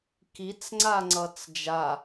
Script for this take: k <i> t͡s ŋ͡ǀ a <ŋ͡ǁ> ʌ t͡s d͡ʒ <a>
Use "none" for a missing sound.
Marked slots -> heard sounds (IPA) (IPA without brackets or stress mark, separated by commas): i, ŋ͡ǀ, a